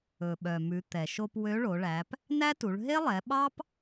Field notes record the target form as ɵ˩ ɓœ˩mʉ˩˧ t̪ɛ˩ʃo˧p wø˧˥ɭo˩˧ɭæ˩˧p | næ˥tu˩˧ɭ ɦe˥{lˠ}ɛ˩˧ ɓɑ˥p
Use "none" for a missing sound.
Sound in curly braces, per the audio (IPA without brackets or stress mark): lˠ